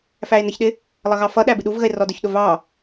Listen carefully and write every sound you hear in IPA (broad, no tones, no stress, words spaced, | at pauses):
fæe̯nəçɗɪ | lˠʌɣɑfʌɗæ bɪɗuvɣəe̯ rɔdʊçɗʊ vɑ